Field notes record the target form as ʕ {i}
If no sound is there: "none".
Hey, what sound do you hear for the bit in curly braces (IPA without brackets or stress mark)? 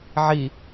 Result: i